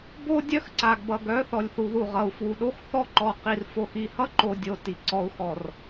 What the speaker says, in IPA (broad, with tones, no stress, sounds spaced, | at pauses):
b o˦ dʲ œ˦ x ǀ a˨ ɡ b ʌ˨ ɡ œ˨˦ θ ɔ˨ lʲ θ u˨ ð u˦˨ ʁ ʌ˨ u̯ f w u˨ ɗ o˦ x θ ɔ˦ ǃ ɔ˨ q i˨ r f o˨ x i˨ h ʌ˦ ǃ o˨ dʲ o˨ t i˨ ǀ ɔ˨ u̯ x ɔ˨ r